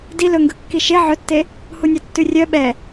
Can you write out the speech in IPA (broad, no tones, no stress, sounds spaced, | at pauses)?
d i l ɵ ŋ ɡ ɵ kː i ʃ e ʕ ɵ tː e | h u nʲ ɑ tː ʉ rʲ œ ɓ ɛ